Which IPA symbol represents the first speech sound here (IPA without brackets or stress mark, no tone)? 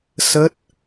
s